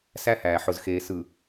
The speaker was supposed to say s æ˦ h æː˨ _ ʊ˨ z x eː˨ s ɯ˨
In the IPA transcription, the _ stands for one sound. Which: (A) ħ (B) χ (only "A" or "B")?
A